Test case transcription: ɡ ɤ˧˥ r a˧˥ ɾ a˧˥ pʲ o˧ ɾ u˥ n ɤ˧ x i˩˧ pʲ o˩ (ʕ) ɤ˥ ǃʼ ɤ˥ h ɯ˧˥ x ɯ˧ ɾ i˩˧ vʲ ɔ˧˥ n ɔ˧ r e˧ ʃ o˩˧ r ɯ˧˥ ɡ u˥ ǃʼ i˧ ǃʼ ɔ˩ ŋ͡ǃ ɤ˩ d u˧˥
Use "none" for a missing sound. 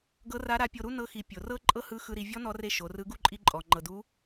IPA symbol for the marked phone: r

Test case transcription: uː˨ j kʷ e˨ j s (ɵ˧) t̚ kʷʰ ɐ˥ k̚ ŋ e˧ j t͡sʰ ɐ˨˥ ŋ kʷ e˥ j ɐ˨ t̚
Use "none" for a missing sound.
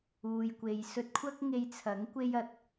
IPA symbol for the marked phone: ɵ˧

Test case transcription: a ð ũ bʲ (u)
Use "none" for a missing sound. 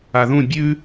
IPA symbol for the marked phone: ʉ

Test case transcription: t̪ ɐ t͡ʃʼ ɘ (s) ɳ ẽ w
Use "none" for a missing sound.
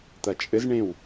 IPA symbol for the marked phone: z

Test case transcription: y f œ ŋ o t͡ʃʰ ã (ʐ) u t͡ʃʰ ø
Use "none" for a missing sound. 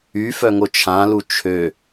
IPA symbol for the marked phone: l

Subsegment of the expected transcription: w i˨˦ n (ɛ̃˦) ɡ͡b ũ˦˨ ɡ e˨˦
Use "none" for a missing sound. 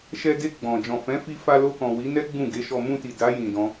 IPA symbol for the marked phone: ɛ˦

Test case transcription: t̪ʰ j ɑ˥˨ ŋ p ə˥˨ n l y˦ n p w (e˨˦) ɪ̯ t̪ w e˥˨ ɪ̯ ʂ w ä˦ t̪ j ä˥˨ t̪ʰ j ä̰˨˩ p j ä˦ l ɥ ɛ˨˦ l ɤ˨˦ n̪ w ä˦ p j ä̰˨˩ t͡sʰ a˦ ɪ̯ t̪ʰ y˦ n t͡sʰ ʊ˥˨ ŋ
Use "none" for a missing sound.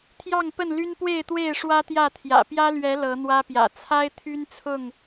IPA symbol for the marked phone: e˥˨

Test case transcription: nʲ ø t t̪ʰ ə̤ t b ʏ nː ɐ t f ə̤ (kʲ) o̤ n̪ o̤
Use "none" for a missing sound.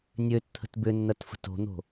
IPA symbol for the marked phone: t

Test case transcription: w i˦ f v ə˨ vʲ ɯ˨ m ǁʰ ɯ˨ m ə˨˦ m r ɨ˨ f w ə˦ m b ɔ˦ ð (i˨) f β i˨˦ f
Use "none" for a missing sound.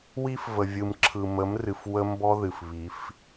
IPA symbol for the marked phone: ɨ˨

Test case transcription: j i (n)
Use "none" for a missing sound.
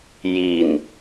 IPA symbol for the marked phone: n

